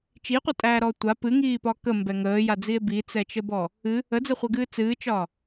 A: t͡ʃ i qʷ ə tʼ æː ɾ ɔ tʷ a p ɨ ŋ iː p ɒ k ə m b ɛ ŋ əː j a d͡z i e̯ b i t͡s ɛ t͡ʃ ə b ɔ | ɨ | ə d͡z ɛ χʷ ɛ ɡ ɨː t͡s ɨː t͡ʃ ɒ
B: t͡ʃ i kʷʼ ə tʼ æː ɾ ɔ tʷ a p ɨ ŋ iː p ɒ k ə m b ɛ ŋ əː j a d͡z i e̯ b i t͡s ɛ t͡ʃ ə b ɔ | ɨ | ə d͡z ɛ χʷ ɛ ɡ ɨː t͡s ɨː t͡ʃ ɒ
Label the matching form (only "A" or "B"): A